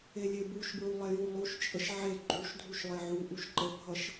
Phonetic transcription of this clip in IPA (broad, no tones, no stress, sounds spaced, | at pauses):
e lʲ e b u ʃ b ɹ u lˠ e j u lˠ u ʃ t͡ʃʼ ə ʃ ʕ e ɡ͡ǃ u ʃ dʱ u ʃ lˠ e ʕ u ʔ u ʃ ǃ ə bʱ ʌ ʃ